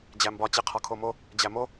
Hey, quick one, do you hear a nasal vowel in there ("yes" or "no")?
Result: no